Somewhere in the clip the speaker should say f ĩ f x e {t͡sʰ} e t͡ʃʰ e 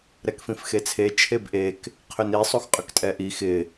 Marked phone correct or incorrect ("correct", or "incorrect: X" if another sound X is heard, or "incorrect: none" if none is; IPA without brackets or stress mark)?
correct